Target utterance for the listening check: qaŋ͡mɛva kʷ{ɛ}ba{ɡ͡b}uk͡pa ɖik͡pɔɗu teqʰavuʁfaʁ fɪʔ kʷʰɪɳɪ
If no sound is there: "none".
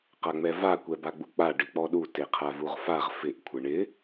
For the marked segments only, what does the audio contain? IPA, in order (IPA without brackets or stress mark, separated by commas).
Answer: ɛ, ɡ͡b